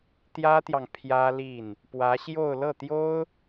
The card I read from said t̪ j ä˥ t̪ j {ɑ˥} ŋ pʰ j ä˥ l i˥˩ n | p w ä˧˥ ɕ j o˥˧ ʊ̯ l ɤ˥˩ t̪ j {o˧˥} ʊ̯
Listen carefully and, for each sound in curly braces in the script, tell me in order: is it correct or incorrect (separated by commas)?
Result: incorrect, incorrect